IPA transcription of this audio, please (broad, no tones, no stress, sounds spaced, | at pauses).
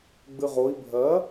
ɡ͡b ɨ ʁ o i̯ bʱ ɜ